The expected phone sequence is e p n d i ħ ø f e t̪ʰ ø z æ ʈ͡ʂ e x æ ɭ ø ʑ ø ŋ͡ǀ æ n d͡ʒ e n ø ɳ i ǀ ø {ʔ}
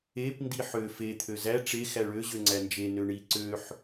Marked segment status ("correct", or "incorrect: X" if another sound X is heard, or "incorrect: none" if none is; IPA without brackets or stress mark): incorrect: ħ